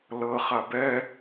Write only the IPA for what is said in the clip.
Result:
l ɤ χ a b ɛ

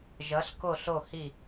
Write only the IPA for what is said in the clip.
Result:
ʒ ʌ˧˥ ɬ k o˥˧ ɬ o˥˧ h i˥˧

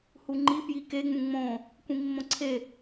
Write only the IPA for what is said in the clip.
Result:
h u ŋ͡ǃ i p j i k e ŋ͡m ũ ŋ͡m õ | kʷ ĩ mː õ ǀʰ e

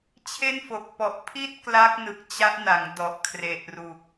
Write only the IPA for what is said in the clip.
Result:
t͡ɕʰ e˥˩ n f o˨˩ k̚ p ɔ˨˩ ʔ pʰ i˥˩ t̚ k l a˦˥ k̚ n ɯ˨˩ k̚ t͡ɕ a˦˥ ʔ n a˩˦ ŋ d ɔ˨˩ ʔ kʰ r e˨˩ ʔ r u˨˩ k̚

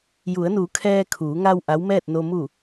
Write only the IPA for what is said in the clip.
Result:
j u˩˧ ə̯ n uː˩˧ kʰ ɛː˧ kʰ uː˩˧ ŋ a˧ w ʔ a˧˥ w m ɛː˥˨ t̚ n o˧ m u˧˩

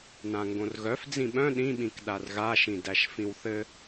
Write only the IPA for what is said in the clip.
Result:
n ã ŋ ɡ õ r ɣ œ f d͡z ĩ ɓ œ̃ ɗ ĩ ɓ ĩ k ɗ a r ɣ a ʃ ĩ d æ ʃ f ĩ w θ ɘ

